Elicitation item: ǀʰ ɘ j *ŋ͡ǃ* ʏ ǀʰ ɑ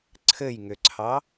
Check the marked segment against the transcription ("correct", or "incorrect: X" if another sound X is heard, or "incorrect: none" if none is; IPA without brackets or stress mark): incorrect: ŋ